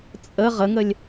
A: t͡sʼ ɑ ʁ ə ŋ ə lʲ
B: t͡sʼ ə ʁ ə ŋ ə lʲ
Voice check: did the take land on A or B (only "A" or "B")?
B